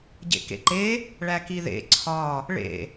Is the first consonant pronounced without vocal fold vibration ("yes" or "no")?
no